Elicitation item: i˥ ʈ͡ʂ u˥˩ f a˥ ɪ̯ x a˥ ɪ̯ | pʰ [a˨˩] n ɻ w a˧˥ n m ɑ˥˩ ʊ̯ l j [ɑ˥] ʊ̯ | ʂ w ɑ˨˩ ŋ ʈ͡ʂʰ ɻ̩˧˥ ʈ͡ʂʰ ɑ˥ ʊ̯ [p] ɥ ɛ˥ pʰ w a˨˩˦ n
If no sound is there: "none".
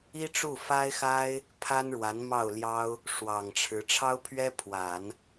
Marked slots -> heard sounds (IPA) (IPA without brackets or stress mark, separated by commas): a˥, ɑ˥, pʰ